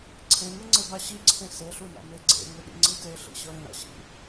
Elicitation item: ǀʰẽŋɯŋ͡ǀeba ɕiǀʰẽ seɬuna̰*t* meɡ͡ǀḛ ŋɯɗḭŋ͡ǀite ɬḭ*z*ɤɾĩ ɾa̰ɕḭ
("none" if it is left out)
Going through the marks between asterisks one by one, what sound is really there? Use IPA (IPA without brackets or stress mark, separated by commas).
none, ɕ